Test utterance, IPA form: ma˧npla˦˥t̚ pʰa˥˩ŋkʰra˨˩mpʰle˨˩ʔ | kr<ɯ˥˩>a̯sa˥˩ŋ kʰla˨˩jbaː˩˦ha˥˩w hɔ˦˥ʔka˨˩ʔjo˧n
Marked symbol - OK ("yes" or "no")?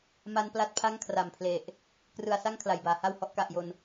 no